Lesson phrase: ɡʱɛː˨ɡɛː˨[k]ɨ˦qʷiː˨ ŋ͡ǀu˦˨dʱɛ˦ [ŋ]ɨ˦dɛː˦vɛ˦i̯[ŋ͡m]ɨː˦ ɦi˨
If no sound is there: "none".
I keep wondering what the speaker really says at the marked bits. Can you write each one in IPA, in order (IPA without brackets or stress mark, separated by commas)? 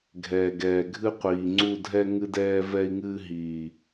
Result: ɡʱ, ŋ, ŋ